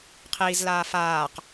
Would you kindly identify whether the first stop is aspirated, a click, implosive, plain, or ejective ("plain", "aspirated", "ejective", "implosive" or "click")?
aspirated